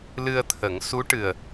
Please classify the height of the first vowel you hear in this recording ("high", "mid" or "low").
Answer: high